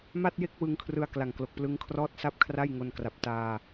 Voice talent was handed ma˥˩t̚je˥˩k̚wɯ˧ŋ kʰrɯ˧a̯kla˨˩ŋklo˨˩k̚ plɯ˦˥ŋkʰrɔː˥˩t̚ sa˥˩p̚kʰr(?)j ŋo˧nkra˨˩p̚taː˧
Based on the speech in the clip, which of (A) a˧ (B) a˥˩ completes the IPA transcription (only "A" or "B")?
B